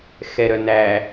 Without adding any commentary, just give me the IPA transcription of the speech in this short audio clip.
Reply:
x ɛ ɾ œ n æ

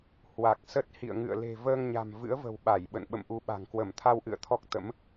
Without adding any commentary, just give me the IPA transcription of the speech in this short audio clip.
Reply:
h w a˨˩ k̚ s ə˦˥ t̚ h ḭ˧˨ ə̯ ŋ ɨ̰˧˨ ə̯ l e̤˨˩ v əː˧ ŋ ɲ a̤˨˩ m v ɨ̰˧˥ ə̯ v ə̤˨˩ w ɓ a˧˩ j ɓ ə̰˧˨ n ɓ ə̰˧˨ m ʔ u˨˦ ɓ a̤˨˩ ŋ k w ə˧˩ m t̪ʰ a˧ w ʔ ɨ̰˧˨ ə̯ t̪ʰ ɔ˦˥ k̚ t̪ ə̰˧˥ m

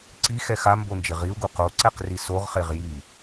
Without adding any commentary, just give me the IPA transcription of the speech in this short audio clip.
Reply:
ǀ i x ɛ x a m b o n d͡ʒ ɪ ʁ i u̯ ɡ u q o ǀ ɛ q r i s o ʁ χ e ʁ j i

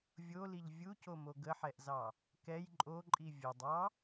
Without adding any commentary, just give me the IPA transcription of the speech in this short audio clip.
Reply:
vʲ o l i ʎ vʲ u c o m o ɡ ə ħ ɛ ʔ z ɑ | k ɛ j ǃʼ o ǃʼ i vʲ ə dˤ ɑ

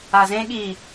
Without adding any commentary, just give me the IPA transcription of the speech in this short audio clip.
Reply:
a z ẽ ɠ i

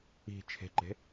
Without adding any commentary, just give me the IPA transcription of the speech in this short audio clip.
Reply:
i̤ t͡ʃʰ e̤ ǃ e̤

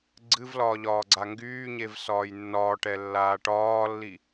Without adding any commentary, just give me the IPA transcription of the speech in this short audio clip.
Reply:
ɡ͡ǀ ɨ v l ɒː ʎ ɒː ɡ͡ǀ a ŋ ɡ yː ɲ e v s ɒː j nː ɒː ʈ ɛ lː aː ʈ ɒː lː i

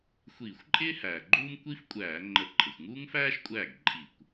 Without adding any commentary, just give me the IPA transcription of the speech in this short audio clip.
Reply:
xʷ iː˧˩˧ xʷ ǃʼ ɪː˥ h æː˩ ɡ͡ǃ uː˥ m kʷ i˥ f kʷʼ æː˧˩˧ ŋ͡ǃ ə˧˩˧ ǃʼ ə˩ xʷ ŋ uː˥ ŋ f æː˥ ʃ kʷʼ æː˥˩ ɡ ǃʼ i˧˩˧ kʷ

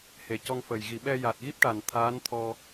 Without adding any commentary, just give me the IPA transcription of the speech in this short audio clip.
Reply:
h e˨˩ c ɔ˧ ŋ f ə˨˩ j ɣ i˨˩˨ ɓ ɛ˧ j a˨˩ t̚ ɣ i˦˥ p̚ ʈ a˨˩ n t̪ʰ aː˧˥ n t̪ʰ ɔ˧

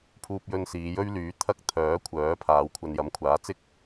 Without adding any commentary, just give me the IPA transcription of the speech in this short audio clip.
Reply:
pʰ uː˥ p̚ j ɵ˥ n s iː˨˧ j ɵ˥ ɥ l yː˨˥ t̪ʰ ɐ˥ k̚ t̪ʰ œː˨˥ kʷʰ œː˨˥ pʰ aː˨˧ w kʷʰ ɐ˧ n j ɐ˨˥ m kʷʰ aː˨˥ t͡s ɪ˥ k̚

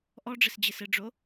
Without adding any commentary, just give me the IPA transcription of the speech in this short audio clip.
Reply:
ʔ ɔ ɖ͡ʐ ɘ s d͡ʑ ɘ s ɘ ɖ͡ʐ o

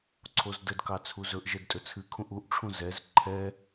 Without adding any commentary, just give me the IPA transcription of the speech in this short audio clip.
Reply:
ǀʰ o z d ə d k ɑ t͡sʰ u z ɵ ʔ ʒ ɛ d tʼ ɵ t͡sʰ ɨ kʰ ũ ʔ u ʔ ʈ͡ʂʰ ũ z ɛ z ǃʰ ɛ

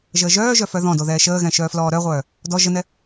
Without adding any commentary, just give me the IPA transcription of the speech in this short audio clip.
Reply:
ʒ əː ʒ œː ʒ œ f œ ð ɔ̃ d o ð ɛː ʃ əː ɣ ɛ̃ ʃ œː f l ɔː ɾ œ ʁʷ œː | d ɔ ʒ ə n ɛ

